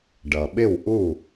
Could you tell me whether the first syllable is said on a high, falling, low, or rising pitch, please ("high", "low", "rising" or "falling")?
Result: low